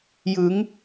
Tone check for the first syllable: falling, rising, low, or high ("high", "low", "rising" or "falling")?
rising